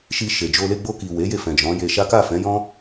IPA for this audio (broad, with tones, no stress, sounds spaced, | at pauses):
ʃ i˧ ʃ e˨ d͡ʒ o˧ l e˧ ɡ͡b o˧ k i˨ w e˨˦ j e˧ f ɛ̃˨ d͡ʒ ɔ̃˨˦ j e˧ ʃ a˦ k a˦˨ f ɛ̃˨˦ j ɔ̃˦